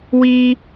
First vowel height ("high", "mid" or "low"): high